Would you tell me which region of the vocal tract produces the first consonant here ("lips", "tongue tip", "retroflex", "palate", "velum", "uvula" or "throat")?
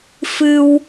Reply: lips